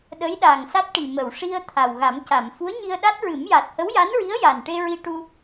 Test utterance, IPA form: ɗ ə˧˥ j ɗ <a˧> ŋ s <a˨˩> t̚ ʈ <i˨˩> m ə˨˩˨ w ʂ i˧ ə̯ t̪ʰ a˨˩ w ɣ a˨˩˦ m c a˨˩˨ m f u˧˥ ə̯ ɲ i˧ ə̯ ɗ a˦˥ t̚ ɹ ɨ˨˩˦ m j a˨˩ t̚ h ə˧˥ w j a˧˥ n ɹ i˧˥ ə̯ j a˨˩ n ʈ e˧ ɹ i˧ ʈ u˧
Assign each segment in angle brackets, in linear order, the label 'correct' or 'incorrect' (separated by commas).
incorrect, incorrect, correct